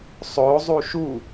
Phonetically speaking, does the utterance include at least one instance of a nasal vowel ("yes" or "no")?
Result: no